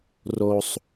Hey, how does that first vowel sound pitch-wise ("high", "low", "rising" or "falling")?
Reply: low